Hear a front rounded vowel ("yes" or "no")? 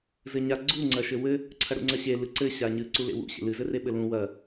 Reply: no